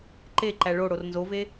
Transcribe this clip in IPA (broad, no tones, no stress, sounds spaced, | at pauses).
ǃ e ǃ æ ɭ o ɽ o r n z o v e